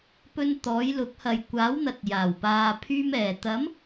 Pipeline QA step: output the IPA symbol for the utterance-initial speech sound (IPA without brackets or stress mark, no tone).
p